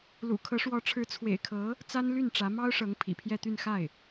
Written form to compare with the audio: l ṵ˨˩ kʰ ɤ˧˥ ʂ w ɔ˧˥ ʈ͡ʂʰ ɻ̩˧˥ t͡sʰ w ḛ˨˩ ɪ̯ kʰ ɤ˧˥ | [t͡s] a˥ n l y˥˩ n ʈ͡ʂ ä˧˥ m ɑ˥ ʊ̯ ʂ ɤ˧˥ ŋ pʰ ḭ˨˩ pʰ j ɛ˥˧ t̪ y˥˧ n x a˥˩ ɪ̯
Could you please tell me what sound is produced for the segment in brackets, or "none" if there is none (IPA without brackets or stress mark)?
t͡s